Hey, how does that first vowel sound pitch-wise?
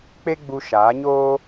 high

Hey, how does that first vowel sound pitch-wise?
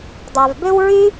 low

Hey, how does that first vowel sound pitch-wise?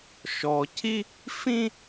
low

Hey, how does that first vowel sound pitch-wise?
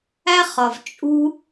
high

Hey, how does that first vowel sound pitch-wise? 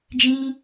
high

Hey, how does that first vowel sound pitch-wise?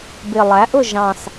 low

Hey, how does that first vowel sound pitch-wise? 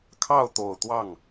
falling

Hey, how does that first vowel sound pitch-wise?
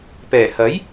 low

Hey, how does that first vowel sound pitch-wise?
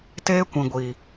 high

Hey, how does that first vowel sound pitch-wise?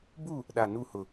falling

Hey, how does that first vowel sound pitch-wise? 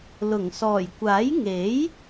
low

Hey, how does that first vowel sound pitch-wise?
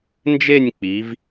falling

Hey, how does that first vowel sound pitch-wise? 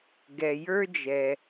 low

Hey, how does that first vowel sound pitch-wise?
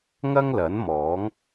high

